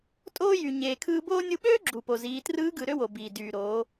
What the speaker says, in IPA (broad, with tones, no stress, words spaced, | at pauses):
tʼoː˧jy˩ ɲeː˩kʰɯː˧boː˥ nʲɯ˧ ɓøː˥ ɡ͡ǁu˩po˩ziː˩˧trɯː˧˥ ɡɯ˩˧ɾø˥wo˩biː˩ dyː˩ɾoː˩˧